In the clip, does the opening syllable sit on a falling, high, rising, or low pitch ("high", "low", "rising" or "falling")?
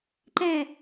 falling